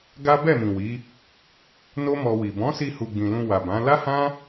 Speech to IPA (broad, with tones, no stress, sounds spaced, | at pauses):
ɡ a˦ b ɛ˦˨ m ĩ˨ w i˨˦ | n o˦ m ɔ˧ w i˨ b ɔ̃˨˦ s i˧ h u˨ ɡ͡b ĩ˨ l ũ˧ w a˨ b ã˨˦ l a˦ h ã˦